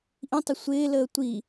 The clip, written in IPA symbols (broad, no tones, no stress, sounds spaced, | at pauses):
ʔ ĩ tˤ ɪ sʷ ɪː l əː tʷ i